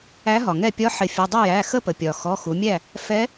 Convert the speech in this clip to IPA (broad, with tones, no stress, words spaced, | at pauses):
æ˧˥ɦɒ˩ŋɛ˥˨ pʲɒ˧˥ħɪ˩˧fʲʊ˩˧˩ dˤɪ˥˨jæ˩˧˩xə˥˨pə˩ pʲɒ˩ xɔ˩˧˩xu˩˧mʲæ˥˨ | fɛ˧˥